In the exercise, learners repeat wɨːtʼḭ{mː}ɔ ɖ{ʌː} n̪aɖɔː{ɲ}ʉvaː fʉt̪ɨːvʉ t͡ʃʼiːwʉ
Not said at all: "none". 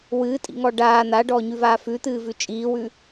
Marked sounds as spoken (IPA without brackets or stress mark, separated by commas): ŋ, aː, ɲ